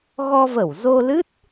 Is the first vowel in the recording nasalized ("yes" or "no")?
no